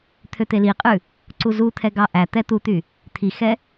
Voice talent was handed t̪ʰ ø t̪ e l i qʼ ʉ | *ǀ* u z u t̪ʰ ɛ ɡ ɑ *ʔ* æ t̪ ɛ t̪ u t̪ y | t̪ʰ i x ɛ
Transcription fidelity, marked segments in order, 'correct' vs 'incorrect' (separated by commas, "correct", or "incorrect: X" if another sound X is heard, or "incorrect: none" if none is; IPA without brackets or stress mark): correct, correct